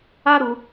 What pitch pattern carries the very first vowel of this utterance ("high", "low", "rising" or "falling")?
high